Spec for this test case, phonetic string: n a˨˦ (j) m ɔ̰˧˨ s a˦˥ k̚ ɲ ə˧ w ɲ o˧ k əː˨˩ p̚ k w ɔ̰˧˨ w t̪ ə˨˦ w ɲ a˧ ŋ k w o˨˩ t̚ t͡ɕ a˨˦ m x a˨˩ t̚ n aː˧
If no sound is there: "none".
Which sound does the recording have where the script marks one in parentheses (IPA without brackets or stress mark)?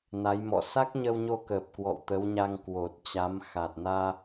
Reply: j